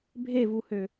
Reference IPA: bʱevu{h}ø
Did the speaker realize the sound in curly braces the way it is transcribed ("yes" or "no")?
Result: yes